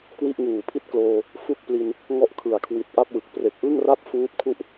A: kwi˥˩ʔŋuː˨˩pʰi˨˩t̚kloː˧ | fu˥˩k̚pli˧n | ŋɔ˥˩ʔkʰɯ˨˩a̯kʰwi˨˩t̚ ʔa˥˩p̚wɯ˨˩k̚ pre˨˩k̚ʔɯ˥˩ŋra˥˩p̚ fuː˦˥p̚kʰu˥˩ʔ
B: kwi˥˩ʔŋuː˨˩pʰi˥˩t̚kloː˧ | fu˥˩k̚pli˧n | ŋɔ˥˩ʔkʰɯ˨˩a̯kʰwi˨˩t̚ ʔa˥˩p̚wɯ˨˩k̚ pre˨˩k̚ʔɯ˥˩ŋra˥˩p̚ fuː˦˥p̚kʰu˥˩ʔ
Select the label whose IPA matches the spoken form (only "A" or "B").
B